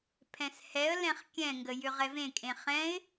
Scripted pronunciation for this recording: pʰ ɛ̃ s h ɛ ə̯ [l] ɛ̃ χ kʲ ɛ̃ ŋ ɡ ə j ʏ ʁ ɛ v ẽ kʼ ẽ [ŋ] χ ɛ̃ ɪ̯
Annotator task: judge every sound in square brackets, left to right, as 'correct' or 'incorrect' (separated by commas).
correct, incorrect